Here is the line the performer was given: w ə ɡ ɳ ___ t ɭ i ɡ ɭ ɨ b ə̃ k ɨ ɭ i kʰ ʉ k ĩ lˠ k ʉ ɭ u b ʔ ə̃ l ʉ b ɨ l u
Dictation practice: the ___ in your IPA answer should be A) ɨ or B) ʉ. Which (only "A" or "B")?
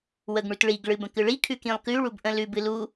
B